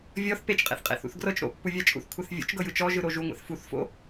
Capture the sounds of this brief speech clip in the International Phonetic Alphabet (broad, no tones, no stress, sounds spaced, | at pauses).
vʲ ɔ θ p e t͡ʃ qʼ ḛ θ qʼ ḛ θ ṵ θ ɡ r ɤ t͡ʃ ɾ o̰ pː u vʲ a t͡ʃʼ ṵ θ kʷʰ ɛ θ vʲ o̰ t͡ʃ ɡ ɤ j ɯ t͡ʃ ɔ ʒ ɯ ɾ o ʒ u ŋʷ ḛ θ f u θ f o̰